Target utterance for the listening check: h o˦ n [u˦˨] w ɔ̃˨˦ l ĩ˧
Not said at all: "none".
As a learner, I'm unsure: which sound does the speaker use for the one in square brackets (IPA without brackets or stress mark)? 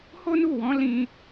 u˦˨